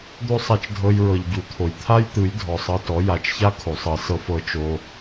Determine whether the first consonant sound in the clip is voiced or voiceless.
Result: voiced